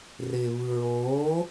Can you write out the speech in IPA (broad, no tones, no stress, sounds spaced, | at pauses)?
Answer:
r ɪː β ɯ ɹ oː